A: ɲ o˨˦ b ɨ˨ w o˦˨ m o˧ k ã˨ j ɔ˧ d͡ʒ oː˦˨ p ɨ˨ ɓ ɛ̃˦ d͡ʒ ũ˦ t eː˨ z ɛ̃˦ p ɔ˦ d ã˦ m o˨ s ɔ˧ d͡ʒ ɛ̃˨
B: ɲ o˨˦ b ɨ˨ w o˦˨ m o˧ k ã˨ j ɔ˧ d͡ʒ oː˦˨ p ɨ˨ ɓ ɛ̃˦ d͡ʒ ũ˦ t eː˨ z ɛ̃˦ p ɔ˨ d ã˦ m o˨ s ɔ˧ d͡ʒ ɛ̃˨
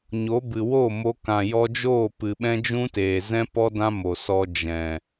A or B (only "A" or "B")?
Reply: A